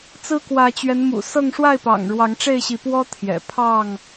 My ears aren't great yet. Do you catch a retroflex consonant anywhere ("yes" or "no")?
yes